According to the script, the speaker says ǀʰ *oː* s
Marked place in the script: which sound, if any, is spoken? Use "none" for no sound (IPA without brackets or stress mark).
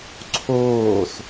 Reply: oː